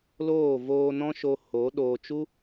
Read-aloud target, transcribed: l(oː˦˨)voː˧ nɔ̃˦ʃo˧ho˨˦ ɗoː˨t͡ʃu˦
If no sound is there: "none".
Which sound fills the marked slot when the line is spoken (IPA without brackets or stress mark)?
oː˦˨